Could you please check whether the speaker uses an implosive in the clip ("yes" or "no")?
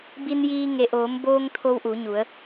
no